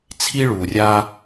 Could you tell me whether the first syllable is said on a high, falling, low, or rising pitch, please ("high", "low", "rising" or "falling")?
high